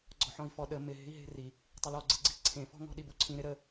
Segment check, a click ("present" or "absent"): present